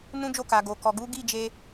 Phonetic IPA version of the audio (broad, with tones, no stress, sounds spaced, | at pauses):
n ũ˦ d͡ʒ o˦˨ k a˨ ɡ o˨ k ɔ˨ ɡ u˨˦ ɡ i˦˨ d͡ʒ e˧